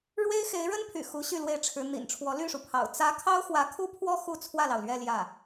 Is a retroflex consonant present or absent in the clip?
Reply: present